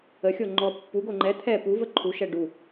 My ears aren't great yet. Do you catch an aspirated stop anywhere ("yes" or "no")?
yes